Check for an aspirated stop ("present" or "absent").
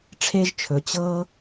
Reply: present